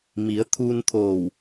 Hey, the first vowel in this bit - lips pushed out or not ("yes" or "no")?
no